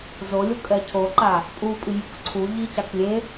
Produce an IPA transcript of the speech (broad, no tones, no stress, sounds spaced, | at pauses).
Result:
z o lʲ o kʼ ɛ cʰ o ǃ a | pʼ u pʼ i mʲ o k ǀʰ u ʎ i c a k lʲ e